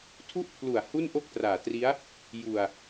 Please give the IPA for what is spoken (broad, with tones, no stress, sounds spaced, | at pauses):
tʰ u˥˩ ʔ pʰ l u˨˩ a̯ h u˥˩ n ʔ o˥˩ k̚ t r aː˨˩ t r i˦˥ a̯ | j u˨˩ a̯